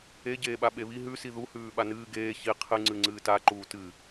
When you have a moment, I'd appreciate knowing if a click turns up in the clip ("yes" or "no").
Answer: yes